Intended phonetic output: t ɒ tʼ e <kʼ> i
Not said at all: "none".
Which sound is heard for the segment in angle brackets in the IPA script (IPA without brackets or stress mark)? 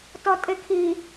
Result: kʰ